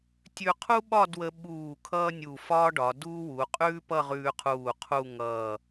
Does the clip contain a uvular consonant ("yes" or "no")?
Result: yes